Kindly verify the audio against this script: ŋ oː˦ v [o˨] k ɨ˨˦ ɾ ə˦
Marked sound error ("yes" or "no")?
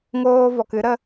yes